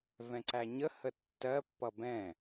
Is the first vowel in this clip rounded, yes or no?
no